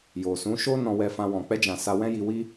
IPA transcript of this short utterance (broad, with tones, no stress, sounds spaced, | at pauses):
j o˨ s ũ˨˦ ʃ o˦ n ɔ̃˧ w ɛ˧ f ã˧ w ɔ̃˨ k͡p ɛ˧ d͡ʒ ã˨ s a˧ w ɛ̃˦ j i˧ w i˦